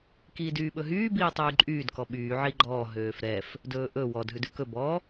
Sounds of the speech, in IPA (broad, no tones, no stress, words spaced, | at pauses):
kiːdyːɓɵɦyː biːtˤyːǃʼyːd kɔɓyː ʕiɡ͡ǃɔː ɦøːfɾɛf | dɵːʔɵ wɔd ɦʉdʉkɵ bɔ